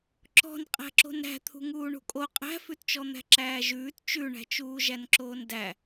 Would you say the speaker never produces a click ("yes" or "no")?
no